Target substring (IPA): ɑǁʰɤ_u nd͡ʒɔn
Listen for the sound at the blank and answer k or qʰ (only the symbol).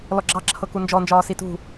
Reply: k